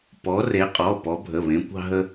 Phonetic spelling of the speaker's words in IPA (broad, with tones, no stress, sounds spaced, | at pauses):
p ɔ˨˦ r e˨˦ qʼ ɔ˩˧˩ p ɔ˨˦ bʱ ə˩˧˩ β ẽ˨˦ kʷ ɑ̤˦ ɦ ə˦